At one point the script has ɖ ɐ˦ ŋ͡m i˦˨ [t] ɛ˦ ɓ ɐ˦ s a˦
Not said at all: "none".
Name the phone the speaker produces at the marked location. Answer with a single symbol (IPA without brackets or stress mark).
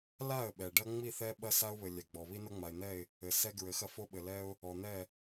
θ